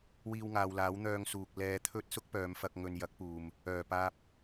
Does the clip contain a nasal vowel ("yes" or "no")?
no